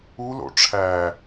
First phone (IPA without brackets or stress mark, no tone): u